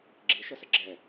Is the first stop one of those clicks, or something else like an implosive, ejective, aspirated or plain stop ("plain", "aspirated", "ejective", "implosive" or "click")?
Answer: click